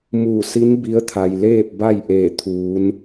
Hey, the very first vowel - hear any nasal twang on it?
no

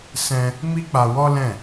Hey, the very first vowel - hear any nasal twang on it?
yes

